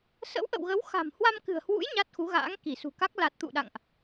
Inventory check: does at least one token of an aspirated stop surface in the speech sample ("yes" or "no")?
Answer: no